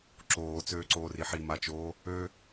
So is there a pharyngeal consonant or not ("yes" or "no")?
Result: yes